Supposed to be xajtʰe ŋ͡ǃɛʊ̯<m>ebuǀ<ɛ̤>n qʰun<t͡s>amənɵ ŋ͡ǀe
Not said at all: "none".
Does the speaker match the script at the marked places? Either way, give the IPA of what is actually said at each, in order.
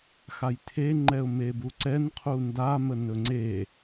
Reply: m, ɛ, d

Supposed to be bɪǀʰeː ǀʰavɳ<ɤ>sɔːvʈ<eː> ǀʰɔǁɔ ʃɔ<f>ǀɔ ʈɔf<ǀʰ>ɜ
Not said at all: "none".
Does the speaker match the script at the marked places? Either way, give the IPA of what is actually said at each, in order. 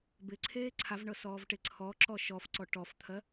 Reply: ɤ, e, f, t̪ʰ

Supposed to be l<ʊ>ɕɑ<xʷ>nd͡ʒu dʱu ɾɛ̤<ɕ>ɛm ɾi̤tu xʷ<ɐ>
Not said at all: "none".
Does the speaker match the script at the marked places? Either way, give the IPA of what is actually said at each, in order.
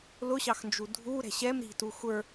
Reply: ʊ, x, ɕ, ə˞

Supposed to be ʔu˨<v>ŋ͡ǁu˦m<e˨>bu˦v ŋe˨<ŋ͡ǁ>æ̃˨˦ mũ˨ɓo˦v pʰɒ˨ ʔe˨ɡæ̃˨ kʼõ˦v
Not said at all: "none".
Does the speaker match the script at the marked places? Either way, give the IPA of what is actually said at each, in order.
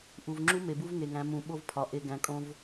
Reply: v, e˨, ŋ

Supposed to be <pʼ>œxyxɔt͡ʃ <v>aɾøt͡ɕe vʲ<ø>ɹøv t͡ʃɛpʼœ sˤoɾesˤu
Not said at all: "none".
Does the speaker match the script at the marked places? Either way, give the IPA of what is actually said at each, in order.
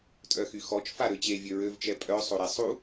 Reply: tʼ, f, ø

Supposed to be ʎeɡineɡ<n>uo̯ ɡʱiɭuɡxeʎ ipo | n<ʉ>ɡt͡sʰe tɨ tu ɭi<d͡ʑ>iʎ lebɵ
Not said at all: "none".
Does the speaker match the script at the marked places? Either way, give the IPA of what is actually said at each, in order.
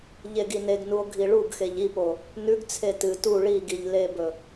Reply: n, ʉ, ɡ

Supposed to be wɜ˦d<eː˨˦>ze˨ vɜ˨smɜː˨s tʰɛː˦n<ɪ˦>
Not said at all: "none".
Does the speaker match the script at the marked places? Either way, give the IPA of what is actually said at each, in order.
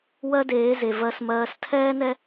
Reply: eː˨˦, ɛ˦

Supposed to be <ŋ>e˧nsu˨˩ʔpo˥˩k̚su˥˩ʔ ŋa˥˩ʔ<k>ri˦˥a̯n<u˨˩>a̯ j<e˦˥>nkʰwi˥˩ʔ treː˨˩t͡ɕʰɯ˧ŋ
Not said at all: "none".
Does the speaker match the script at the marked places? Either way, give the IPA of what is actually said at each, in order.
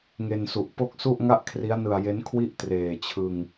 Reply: ŋ, kʰ, ɯ˨˩, e˦˥

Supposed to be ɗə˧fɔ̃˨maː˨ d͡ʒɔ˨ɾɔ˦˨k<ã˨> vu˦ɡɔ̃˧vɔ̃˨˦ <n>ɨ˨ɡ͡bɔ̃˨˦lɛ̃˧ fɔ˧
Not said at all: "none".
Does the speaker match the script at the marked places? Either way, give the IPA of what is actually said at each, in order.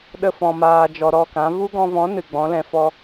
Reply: ã˨˦, n

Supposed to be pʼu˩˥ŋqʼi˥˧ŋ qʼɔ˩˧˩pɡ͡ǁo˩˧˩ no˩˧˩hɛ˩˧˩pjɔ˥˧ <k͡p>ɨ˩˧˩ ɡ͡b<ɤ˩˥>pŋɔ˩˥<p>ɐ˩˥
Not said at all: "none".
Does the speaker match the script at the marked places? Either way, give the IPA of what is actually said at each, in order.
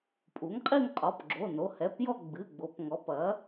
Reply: ɡ͡b, o˩˥, p

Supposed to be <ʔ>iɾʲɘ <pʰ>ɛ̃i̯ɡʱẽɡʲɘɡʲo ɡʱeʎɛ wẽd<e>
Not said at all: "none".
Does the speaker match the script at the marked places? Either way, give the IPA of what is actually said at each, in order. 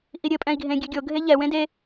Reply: ʔ, pʼ, e

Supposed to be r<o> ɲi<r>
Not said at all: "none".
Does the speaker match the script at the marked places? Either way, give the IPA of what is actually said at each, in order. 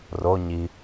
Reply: o, none

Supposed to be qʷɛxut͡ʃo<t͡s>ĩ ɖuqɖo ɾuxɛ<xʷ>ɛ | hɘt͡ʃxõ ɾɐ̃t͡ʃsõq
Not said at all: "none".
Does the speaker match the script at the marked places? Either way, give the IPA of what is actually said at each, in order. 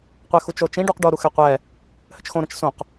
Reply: t͡ʃ, qʷ

